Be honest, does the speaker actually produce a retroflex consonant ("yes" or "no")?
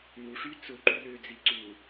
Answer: yes